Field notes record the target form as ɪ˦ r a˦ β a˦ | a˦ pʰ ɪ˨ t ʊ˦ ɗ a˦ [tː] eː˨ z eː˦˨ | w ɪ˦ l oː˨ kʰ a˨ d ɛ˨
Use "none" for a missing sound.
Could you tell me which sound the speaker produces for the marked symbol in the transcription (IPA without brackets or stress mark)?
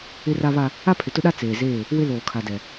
t͡s